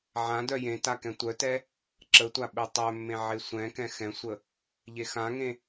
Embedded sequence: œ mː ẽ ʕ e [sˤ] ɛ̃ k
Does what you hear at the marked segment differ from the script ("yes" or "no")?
yes